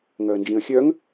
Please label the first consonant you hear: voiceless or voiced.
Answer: voiced